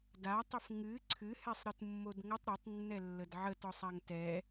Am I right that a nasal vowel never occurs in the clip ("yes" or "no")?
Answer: yes